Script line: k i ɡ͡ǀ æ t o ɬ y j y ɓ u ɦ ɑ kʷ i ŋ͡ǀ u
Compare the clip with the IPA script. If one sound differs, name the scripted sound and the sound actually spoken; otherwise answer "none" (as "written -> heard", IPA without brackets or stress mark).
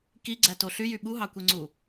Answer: none